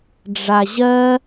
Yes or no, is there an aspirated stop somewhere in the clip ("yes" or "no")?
no